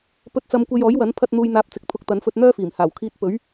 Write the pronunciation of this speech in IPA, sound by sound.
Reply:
pɵ˧t̚t͡sɐ˧m kʷe˧jɔː˨˥jwɐ˨˥n pʰɐ˧t̚n̪uː˨jn̪aː˨˥p̚ t͡sɪ˨˥k̚t̪ʰʊ˧k̚t̪ɐ˨˥nfɵ˧t̚ n̪œː˥fiː˨˩mhaː˨˩w kʰiː˧t̚ pɵ˨˥ɥ

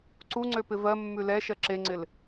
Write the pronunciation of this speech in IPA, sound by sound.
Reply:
ǀuŋ͡ǀø pɪvɜmːʉ lɛʃɜ ǁeŋ͡ǀɪl

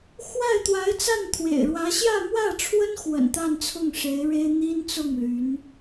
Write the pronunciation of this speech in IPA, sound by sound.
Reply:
xwa˥˩ɪ̯t̪wa˧˥ɪ̯ t͡sa˥˩nt̪ʰwḛ˨˩ɪ̯ɻwä˧˥ ɕjä˥˧mwä˥˩ʈ͡ʂʰwə˥nxwə̰˨˩n t̪a˥˧nt͡sʰʊ˥˩ŋʂe˧˥ɪ̯ ɻe˥ɪ̯n̪i˥nt͡sʊ˥˩ŋ ly˧˥n

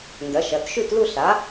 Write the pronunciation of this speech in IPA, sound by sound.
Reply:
ndɐ˩˥ʃɐ˩˧˩t ʃʉ˥˧tlu˥˧ɬa˩˥

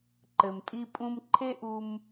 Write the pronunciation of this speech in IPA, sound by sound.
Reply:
ǃɘ˩mtʼi˧ pʼũ˧m ǃʰe˥ʔu˧m

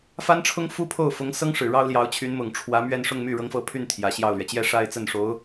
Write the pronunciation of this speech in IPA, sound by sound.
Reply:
fa˥nʈ͡ʂʰʊ˥ŋ fu˥pʰo˥˩ʊ̯fʊ˧˥ŋ sɤ˥ŋʂɻ̩˨˩ ɻɑ˥ʊ̯ljɑ˧˥ʊ̯t͡ɕʰy˧˥n mʊ˨˩ŋʈ͡ʂʰwä˧˥mɥɛ˥˧n ʂʊ˥˧ŋ my˥˩ɻɤ˧˥ŋfɤ˧˥ pʰy˥˩n t̪ʰjä˨˩ɕjɑ˥˩ʊ̯lɥɛ˩ t͡ɕjɛ˥˧ʂa˥˧ɪ̯t͡sə˥˩nʂo˧˥ʊ̯

